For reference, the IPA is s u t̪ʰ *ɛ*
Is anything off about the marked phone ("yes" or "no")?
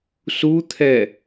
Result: no